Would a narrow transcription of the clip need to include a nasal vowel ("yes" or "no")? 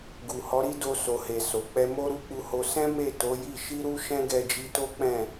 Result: yes